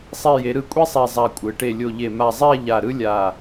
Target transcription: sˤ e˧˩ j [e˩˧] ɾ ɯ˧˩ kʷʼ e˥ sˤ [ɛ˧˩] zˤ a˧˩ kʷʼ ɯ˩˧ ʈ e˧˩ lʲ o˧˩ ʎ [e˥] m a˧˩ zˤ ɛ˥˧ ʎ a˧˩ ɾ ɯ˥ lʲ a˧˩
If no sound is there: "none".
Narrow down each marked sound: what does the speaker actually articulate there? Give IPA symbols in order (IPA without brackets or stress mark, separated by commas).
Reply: e˩˧, ɛ˧˩, e˧˩